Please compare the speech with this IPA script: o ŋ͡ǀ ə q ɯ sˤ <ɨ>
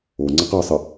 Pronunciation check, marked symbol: incorrect: ə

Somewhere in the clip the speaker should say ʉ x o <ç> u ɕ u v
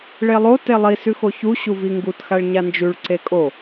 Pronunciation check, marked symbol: correct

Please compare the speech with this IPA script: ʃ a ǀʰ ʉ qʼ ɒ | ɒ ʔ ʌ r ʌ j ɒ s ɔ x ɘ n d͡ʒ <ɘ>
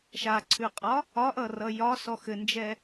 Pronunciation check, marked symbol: incorrect: ɛ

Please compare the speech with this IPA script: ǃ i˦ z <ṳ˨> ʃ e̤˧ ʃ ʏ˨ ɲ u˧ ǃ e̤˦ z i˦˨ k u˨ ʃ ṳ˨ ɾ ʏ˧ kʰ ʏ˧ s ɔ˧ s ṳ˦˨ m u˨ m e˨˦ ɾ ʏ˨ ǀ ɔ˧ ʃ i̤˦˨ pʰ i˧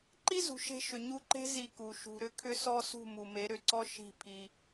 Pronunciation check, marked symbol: correct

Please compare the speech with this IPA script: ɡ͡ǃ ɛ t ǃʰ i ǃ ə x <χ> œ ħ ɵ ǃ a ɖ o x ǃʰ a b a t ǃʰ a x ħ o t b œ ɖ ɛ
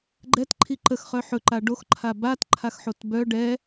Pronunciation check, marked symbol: correct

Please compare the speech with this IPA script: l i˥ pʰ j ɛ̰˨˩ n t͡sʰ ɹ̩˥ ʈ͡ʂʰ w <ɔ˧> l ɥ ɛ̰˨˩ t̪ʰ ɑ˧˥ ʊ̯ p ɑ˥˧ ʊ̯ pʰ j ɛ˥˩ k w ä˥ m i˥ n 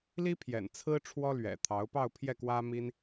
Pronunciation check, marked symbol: incorrect: ɔ˥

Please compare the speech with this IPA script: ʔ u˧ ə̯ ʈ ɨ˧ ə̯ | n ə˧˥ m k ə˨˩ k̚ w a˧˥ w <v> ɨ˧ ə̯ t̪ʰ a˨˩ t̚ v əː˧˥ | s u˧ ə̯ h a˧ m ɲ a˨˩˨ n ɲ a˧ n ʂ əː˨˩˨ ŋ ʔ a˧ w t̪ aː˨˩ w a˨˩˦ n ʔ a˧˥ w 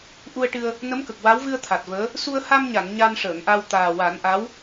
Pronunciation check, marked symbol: correct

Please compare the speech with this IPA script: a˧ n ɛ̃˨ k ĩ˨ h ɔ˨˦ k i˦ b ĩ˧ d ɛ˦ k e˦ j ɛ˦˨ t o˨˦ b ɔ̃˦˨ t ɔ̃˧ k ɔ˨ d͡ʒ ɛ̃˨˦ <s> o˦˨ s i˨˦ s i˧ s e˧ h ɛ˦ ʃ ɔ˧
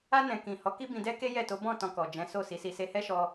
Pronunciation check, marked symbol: correct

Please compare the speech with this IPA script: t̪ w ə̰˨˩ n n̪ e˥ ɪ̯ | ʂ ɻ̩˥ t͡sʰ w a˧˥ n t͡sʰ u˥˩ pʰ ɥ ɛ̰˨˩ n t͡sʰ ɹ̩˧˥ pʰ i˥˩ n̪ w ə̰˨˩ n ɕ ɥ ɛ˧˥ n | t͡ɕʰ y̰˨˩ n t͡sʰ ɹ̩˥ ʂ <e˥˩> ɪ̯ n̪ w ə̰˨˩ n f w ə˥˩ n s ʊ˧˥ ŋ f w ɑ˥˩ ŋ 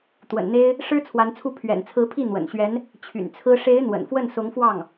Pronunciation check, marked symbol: incorrect: e˧˥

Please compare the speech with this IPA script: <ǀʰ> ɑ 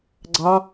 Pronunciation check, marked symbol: incorrect: ɡ͡ǀ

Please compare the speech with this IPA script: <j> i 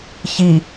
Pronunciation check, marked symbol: incorrect: ç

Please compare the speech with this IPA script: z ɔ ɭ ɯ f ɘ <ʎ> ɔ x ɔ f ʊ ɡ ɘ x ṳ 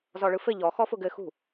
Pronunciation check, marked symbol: correct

